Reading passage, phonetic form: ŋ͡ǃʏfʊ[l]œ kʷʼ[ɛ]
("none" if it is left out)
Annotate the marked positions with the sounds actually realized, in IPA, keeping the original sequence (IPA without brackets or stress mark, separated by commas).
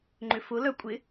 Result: l, ɪ